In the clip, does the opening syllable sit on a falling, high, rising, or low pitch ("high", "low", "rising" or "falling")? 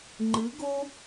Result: rising